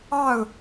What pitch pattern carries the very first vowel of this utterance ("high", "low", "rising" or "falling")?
falling